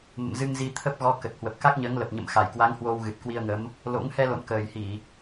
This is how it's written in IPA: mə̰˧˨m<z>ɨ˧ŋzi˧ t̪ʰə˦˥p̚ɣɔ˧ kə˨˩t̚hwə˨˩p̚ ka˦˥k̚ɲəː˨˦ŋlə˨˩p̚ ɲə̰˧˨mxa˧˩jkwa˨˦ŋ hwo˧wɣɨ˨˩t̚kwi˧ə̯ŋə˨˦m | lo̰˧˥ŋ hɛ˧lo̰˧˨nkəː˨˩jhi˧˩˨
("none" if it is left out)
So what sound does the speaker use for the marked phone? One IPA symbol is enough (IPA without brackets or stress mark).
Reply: z